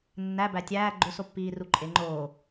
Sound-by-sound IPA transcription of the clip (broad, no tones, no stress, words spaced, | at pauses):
nːæbæ tʲæː ɡ͡ǃosopːiː ruǃʼe ŋ͡ǃoː